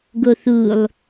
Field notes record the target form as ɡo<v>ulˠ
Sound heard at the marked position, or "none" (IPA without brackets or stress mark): θ